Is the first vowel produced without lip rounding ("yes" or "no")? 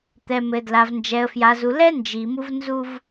yes